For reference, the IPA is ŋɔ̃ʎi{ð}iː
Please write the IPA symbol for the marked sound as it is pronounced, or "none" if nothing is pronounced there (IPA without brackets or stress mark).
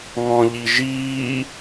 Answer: ʒ